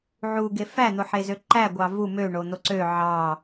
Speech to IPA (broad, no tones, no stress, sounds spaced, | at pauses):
ʕ u ɡ e f æ n̪ o ħ e z ø ǃ æ ɡʷ ɑ v u m ø ɳ o n̪ o ǀ ø ʕ ɑ